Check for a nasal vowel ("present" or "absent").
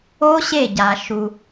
absent